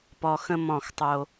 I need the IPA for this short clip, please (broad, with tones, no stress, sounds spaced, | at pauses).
p ɔ˨ x ə̃˦ m ɔ̃˦˨ x tˤ o˦